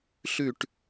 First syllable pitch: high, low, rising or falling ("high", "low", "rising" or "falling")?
falling